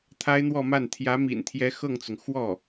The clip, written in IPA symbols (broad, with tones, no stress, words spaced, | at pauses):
t̪ʰa˥ɪ̯n̪wɔ˥˧ma˥˩n t̪ʰjä˧˥mḭ˨˩nt̪ʰjɛ˧˥ xɤ˥˩ŋt͡sʊ˩ŋ xwɔ˥˩